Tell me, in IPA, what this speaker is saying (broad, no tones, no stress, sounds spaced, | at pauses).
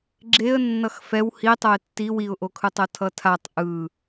ɡ͡ǁ e ə̯ nː ʌ x f ɛ w h i tˤ o ɪ̯ tː i w i ʊ̯ ʔ o kʰ ɯ tˤ o tʰ ʌ tʰ a tˤ ʔ ɯ